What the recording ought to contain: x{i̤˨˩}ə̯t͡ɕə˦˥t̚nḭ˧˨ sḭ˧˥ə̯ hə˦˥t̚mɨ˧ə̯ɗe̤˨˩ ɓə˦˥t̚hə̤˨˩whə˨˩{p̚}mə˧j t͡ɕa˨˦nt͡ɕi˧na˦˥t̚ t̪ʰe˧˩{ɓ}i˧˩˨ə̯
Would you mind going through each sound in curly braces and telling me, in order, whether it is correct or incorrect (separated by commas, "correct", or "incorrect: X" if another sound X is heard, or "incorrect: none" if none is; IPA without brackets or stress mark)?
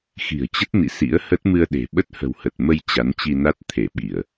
correct, incorrect: t̚, correct